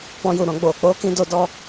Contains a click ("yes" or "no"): no